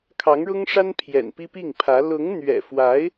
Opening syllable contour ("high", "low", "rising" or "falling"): rising